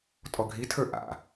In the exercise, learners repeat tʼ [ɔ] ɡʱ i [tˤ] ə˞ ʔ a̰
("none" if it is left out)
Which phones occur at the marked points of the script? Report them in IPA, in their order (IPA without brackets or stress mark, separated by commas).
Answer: ɔ, tʰ